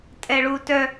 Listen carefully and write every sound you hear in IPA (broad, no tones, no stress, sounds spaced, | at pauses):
tʼ ɛ ɭ u t œ